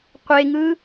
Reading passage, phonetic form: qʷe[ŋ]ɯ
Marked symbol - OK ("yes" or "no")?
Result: yes